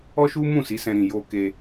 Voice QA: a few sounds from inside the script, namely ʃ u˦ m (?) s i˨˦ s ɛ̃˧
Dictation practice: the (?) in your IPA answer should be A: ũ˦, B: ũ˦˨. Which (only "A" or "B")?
B